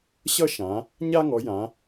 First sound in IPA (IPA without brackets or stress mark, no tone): ɕ